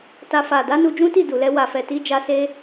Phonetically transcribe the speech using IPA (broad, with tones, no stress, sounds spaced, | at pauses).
t a˧ f a˨ d a˨˦ n u˧ d͡ʒ ũ˦ t i˦˨ d u˨ l ɛ˧ w a˨ f ɛ˨ t i˧ d͡ʒ a˧ s e˦